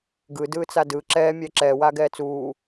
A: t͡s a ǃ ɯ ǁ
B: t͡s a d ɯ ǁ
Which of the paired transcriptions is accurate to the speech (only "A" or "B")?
B